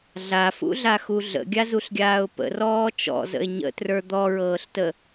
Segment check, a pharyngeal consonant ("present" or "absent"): absent